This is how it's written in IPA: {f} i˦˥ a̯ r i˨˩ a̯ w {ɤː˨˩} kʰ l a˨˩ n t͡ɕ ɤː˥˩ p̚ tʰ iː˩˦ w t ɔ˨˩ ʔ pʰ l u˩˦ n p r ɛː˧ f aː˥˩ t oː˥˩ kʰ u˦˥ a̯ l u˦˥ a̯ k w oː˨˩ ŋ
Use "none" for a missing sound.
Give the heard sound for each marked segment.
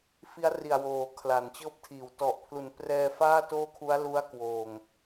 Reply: f, oː˨˩

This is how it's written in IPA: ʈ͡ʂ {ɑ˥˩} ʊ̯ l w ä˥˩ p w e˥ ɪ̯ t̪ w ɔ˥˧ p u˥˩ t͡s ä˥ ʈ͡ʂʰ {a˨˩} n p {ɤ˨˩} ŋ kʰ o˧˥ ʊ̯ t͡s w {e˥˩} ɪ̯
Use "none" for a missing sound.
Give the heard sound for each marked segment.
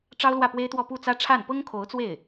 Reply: ɑ˥, a˥˩, ɤ˥, e˥˩

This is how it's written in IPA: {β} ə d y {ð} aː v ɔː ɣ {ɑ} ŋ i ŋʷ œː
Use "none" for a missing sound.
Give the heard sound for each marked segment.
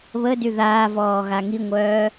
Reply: β, ð, a

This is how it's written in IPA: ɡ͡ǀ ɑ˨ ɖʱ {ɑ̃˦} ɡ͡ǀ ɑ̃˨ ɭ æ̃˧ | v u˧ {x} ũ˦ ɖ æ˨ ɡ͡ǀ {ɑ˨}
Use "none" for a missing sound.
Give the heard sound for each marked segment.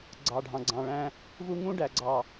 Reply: ɑ̃˨, ŋ, ɑ˨

